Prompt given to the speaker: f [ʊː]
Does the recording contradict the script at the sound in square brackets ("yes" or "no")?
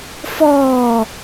yes